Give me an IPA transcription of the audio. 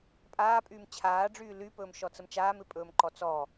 pʼaːpʼyːm t͡ɕʰaːɖ͡ʐyː lypɵːmʃɔt͡səm t͡ʃaːmɪpʼɵːmǃɔ t͡sɔ

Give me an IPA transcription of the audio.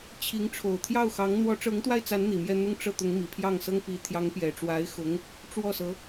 t͡ɕʰi˧˥ŋ ʈ͡ʂʰo˨˩ʊ̯t̪ʰjɑ˥˩ʊ̯xɑ˧˥ŋ n̪wɔ˧˥ʈ͡ʂɤ˧˥ŋt̪wa˥˩ɪ̯t͡sa˧˥n n̪i˨˩mjɛ˥˧ n̪ʊ˥˧ŋʈ͡ʂɤ˥˩ t̪ʊ˧˥ŋmi˨˩pʰjɑ˥˩ŋsɤ˥ŋ pi˧˥ t̪ʰjɑ˧˥ŋpjɛ˨˩ʈ͡ʂwa˧˥ɪ̯xʊ˧˥ŋ | ʈ͡ʂwɔ˥˩sɤ˧˥

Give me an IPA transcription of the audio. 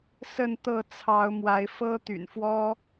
sə˥˨nt̪ɤ˥˨t͡sʰɑ˨˦ʊ̯ mwa˨˦ɪ̯ fɤ˦ t̪y̰˨˩nfwɔ˦

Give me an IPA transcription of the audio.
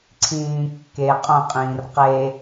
ǀʰĩːkːe qʼõqʼĩːr qe

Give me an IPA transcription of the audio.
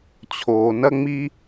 t͡ɕʰoː˧nɐ˥ŋ͡mi˥

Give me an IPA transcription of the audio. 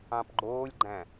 ɑ̃pɡ͡ǃoːlʲɡ͡ǃæ̃

